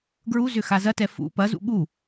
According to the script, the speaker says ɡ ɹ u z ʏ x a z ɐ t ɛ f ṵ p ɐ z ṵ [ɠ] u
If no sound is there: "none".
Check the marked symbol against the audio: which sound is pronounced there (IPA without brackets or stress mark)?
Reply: ɠ